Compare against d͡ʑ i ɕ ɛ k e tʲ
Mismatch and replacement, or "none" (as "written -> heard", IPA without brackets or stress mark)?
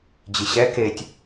none